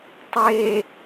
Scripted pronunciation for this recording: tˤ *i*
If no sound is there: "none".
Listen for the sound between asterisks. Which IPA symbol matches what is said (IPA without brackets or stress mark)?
e